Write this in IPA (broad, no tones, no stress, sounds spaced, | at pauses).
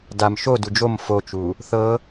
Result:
d a m ʃ o d u d͡ʒ o m f o t͡ʃ u | θ ɤ